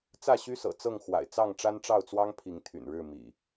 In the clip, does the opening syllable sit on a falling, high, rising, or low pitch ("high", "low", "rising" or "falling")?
falling